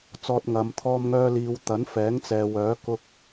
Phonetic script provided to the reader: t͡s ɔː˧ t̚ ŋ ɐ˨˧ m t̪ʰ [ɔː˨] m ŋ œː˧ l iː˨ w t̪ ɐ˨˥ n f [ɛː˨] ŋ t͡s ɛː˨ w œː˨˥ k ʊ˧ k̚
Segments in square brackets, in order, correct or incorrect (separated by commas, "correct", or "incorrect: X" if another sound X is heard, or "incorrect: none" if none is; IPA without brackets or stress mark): incorrect: ɔː˧, incorrect: ɛː˨˥